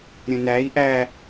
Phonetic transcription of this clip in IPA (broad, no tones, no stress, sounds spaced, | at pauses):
ɾʲ ə̃ n æ i̯ ʔ æ